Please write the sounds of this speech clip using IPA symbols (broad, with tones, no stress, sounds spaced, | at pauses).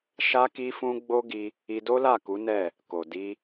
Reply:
ʃ a˦ k i˦ f ũ˦ ɡ͡b o˦ ɡ i˧ | i˧ d o˦ l a˦˨ k u˨˦ n ɛ˦˨ | k o˨ d i˧